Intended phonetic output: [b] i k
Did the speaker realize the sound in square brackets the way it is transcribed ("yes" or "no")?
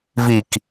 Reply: no